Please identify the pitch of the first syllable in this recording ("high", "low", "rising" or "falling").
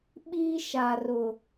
high